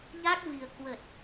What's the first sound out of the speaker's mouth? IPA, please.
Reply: ɲ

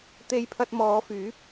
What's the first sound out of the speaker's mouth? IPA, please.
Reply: t̪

